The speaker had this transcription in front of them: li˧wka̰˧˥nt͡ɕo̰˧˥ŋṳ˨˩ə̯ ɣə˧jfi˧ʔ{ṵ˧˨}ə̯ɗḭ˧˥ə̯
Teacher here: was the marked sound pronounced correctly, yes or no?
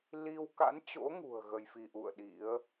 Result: yes